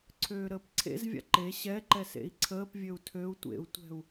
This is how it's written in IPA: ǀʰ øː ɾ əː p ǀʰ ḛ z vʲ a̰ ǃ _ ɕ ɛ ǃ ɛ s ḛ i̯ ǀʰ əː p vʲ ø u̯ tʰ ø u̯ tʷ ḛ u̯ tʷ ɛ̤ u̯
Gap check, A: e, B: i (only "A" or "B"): A